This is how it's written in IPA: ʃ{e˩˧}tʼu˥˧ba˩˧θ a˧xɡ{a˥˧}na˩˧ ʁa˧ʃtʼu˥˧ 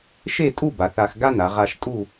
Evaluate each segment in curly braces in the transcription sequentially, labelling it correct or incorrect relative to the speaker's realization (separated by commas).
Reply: incorrect, incorrect